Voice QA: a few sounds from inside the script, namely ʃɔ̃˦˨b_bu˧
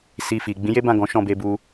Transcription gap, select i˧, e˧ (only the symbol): e˧